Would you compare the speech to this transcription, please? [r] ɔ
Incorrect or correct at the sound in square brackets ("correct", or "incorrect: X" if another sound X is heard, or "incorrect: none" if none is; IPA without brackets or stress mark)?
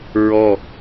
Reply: incorrect: ɹ